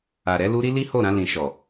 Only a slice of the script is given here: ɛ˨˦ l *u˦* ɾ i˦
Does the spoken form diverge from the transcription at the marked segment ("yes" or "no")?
no